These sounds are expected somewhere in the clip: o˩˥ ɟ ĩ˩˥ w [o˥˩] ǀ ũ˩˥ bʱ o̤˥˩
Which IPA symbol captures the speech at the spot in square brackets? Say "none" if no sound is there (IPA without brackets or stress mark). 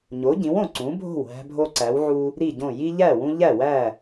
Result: õ˥˩